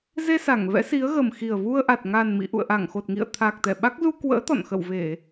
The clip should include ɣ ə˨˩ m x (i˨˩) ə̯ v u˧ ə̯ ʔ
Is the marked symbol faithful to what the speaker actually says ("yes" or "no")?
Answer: yes